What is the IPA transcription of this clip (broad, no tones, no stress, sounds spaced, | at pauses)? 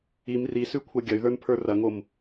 i m r i s ʉ kʷʰ ɐ ɡʲ ɐ y̯ ð ə˞ n pʰ ə˞ r ɐ ŋ o m